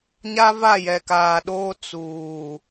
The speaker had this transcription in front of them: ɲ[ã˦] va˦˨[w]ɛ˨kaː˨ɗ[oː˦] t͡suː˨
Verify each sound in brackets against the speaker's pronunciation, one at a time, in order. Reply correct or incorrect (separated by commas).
incorrect, incorrect, correct